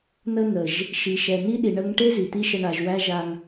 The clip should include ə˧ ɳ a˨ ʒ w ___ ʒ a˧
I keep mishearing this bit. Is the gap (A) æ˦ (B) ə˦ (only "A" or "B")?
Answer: A